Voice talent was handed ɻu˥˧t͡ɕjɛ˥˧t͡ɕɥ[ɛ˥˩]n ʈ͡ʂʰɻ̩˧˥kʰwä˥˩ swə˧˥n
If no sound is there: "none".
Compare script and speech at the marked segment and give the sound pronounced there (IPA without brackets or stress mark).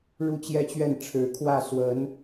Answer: ɛ˥˩